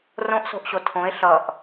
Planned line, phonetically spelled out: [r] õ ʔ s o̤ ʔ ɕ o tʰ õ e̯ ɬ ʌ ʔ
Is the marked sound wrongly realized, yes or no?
no